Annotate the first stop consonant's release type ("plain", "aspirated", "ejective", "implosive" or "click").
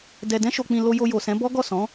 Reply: plain